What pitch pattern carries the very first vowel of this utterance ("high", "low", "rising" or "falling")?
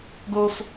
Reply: high